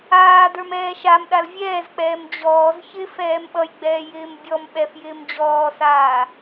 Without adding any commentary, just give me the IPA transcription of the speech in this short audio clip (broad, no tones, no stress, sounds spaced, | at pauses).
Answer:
aː d ə˞ m ɛː ʃ a m ɗ a l vʲ ɛː z k͡p ɛː m d͡ʑ ɔː z ç ɪ f ɛː m ɓ ʌ j ɡ͡b ɛː j ɪː m bʲ ɔ m ɓ ɛ f j ɪː m d͡ʑ ɔː s aː